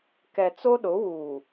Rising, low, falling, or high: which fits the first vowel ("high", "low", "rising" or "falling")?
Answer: low